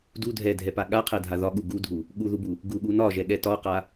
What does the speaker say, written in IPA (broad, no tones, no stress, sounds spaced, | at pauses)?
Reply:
d u dʱ ɛ dʱ ɛ p a ɠ a qʰ ɛ dʱ a ð ɒ ɠ u ɡ u dʱ u | ɠ u ð u b u | ɡ u ɠ u n ɒ ʒ ɛ ɠ ɛ t ɒ q a